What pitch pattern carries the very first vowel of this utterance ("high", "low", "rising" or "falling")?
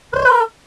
high